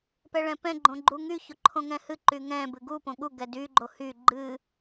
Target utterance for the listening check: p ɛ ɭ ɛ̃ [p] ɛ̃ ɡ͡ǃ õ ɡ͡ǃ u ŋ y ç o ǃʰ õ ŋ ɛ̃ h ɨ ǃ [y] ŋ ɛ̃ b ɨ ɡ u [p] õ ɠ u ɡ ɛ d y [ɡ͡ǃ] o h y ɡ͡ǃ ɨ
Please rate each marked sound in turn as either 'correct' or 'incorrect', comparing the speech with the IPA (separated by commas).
correct, correct, correct, correct